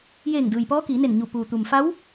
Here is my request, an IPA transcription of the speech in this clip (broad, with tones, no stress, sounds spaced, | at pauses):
j eː˧˩ ŋ d ɯː˩ j p ɔː˧˥ k iː˩˧ n e˧˩ n ɲ u˧˩ p uː˩ t̪ u˩ m f a˧˥ w